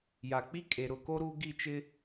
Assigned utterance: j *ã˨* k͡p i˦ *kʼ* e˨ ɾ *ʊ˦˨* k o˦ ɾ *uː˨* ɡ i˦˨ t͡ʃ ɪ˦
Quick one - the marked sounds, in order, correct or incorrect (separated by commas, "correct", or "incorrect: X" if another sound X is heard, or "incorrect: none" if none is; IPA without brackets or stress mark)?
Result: incorrect: a˨, correct, correct, incorrect: uː˦